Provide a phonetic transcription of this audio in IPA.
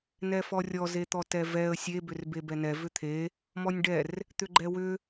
n ɛ f ɔ rʲ ɔ z e t̪ ɔ t ɛ v ɛ ə̯ sʲ e b ʏ r b e b ɛ n ɛ v ʏ t̪ʰ e | m ɔ nʲ ɖ ɛ r | t̪ ʏ ɡ͡ǃ ɛ w ʏ

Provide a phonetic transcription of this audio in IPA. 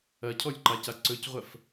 ɐ cʰ ɔ lʲ ǃ a c a ǀ ɵ c ʁʷ ɐ f

